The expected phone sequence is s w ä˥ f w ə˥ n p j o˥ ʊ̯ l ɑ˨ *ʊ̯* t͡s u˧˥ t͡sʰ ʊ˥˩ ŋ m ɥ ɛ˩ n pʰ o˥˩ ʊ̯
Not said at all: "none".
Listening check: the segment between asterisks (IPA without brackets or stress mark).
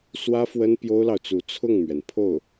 ʊ̯